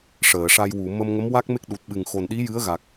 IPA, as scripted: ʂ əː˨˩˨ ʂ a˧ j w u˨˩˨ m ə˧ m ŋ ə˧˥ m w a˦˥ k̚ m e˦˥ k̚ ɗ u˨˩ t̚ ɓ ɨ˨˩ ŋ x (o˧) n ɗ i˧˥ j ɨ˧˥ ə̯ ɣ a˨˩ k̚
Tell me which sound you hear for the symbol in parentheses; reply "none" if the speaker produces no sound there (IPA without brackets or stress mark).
o˨˩